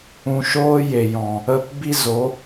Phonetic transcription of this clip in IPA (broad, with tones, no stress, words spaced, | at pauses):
ũ˨ʃoː˧ je˨jɔ̃˨ | ə˧p bi˦zo˨˦